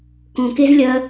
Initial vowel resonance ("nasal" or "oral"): nasal